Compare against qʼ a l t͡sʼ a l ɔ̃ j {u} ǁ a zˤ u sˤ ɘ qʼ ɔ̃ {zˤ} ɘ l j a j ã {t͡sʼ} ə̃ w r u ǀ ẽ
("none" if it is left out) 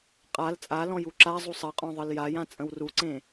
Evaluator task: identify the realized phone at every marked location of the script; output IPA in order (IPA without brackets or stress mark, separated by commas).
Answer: u, ðˤ, t͡sʼ